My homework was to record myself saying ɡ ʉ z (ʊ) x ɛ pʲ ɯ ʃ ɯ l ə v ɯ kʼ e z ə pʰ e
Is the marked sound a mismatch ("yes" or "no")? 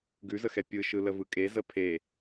yes